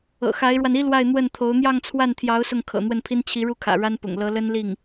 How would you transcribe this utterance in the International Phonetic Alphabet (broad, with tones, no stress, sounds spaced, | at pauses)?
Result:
ɤ̰˨˩ x a˧˥ ɪ̯ ɻ w a˧ n i˥ l w a˥˧ ɪ̯ n̪ w ə˥˩ n t̪ʰ o˧˥ ʊ̯ n̪ j ɑ˥˧ ŋ t͡sʰ w a˥˩ n t̪ʰ j ɑ˧˥ ʊ̯ s ʊ˥˩ ŋ kʰ ɤ̰˨˩ n̪ w ə˥˩ n pʰ i˥ n t͡ɕʰ i˧˥ ɻ u˥˩ kʰ ä̰˨˩ ɻ a˥ n p ʊ̰˨˩ ŋ l ɤ˧˥ l ə˥ n l i˥˩ ŋ